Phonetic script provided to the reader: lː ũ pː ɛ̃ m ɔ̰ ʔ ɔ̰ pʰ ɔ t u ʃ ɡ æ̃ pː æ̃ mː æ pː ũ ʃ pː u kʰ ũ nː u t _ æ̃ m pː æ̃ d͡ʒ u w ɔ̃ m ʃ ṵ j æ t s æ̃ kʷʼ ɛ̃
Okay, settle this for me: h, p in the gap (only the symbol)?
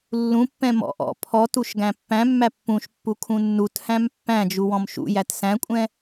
h